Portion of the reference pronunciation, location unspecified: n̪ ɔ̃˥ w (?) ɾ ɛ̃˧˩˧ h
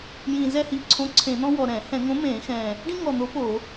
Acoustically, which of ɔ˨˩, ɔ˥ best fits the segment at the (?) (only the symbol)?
ɔ˨˩